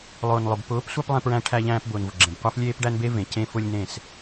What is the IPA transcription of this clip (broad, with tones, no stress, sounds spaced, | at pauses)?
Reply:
lˠ ʊː˨ n lˠ ʊ˨ b p ʊː˨˦ p sʷ æ˦ p lˠ ẽ˧ p ɹ æ̃˧ ʈʰ æ˧ ʎ æ̃ː˧ p b ʊː˨ n v ʊ˨ ɡ͡ǁ ẽ˨ b qʷ æ˦ f lʲ eː˦ p ɖ æ˦ n b e˦ v ẽ˨ c ẽ˦ f ʊ˦ lʲ n ẽ˦˨ s